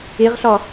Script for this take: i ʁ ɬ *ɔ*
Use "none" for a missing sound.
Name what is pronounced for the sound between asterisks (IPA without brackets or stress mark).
ɔ